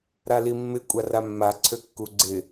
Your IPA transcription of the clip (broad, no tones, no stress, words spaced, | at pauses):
ɾalimːɪ kʷʼaramːa ǀʰøkːuɡ͡ǀɪ